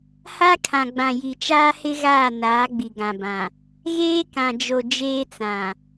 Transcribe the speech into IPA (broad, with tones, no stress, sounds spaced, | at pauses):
h a˦ kʰ ã˨ ɡ͡b ã˨ j i˨ t͡ʃ aː˦ h ɪ˦ ɣ aː˦˨ n aː˨˦ ɡ͡b i˨ ɡ ã˨ b ã˨ | ɣ eː˦ k ã˨ d͡ʒ o˨ d͡ʒ eː˦ t͡s ã˨